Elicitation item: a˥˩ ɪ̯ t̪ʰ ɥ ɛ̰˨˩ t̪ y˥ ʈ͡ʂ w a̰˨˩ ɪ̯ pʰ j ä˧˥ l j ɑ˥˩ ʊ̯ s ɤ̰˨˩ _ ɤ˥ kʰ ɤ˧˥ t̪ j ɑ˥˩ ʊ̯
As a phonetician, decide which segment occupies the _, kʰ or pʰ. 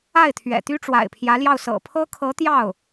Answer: pʰ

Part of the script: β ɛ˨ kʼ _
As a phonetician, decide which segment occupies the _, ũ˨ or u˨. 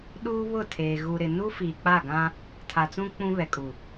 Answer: u˨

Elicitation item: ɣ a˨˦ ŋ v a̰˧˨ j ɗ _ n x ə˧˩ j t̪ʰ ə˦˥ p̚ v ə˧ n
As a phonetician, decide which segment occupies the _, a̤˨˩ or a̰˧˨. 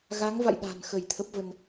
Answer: a̤˨˩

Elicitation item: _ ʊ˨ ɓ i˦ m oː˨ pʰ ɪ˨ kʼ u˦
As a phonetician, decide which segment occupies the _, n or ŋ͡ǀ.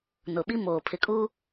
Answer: n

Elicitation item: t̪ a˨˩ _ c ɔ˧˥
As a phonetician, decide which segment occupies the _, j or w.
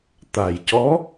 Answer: j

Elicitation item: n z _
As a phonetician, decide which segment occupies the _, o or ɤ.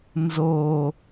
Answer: o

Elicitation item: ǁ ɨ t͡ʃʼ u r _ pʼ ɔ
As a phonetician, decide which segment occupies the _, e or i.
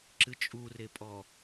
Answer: e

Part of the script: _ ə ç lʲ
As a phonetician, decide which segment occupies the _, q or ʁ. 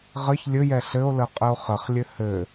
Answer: ʁ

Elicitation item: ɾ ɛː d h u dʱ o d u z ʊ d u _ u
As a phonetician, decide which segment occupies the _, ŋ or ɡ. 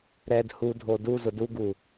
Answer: ɡ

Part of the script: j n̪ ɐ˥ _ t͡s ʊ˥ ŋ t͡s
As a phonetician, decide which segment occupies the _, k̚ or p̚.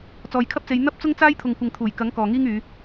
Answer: p̚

